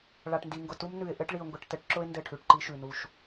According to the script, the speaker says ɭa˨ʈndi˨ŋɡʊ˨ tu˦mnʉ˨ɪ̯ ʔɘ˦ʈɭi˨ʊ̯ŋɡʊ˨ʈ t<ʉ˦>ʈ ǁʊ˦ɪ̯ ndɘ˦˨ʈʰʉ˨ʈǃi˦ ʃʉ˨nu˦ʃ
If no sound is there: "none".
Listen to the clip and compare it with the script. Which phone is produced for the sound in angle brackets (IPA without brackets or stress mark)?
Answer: ɘ˦